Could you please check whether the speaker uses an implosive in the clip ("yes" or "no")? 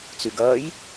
no